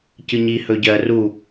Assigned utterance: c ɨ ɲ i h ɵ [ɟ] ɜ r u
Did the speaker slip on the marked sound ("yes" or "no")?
no